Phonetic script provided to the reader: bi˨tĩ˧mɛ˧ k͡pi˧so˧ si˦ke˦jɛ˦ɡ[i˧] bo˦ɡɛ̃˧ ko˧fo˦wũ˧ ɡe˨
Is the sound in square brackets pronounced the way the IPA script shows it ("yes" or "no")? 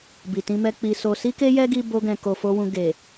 yes